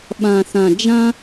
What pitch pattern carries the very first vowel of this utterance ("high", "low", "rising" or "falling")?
low